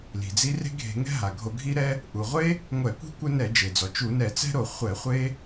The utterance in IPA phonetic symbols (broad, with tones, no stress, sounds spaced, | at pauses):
l i̤˩ d͡z i˦ r e̤˦ ɡʱ e̤˧˩˧ ŋ ɛ̤˦ ɦ a˩ ɡʱ o˧˩˧ ɡʱ i˦ ɾ ɛ˦ | ʔ u˩ ʁʷ e˦ | ŋʷ ɛ˧˩˧ kʷ i̤˦ kʷ ɘ˦ n ɛ˧˩˧ d͡ʒ e˩ d͡z ɔ˩ t͡ʃ u˧˩˧ n ɛ˧˩˧ t͡s ɛ̤˦ ɾ o˧˩˧ χʷ ɛ˧˩˧ χʷ e˦